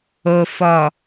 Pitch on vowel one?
low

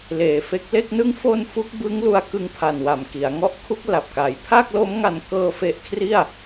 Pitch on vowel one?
low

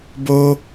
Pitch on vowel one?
high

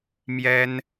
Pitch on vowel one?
high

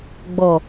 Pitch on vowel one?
low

